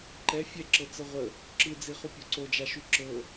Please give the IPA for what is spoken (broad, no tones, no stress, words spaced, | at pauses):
ǃɛ fʲɛǁɤ t͡səʁʷə | ǁɯd͡ziχu pʲoǀod͡ʒaʃu ǁɤ